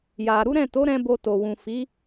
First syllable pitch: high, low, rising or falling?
low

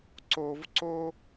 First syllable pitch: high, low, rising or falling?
low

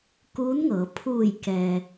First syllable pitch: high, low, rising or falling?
rising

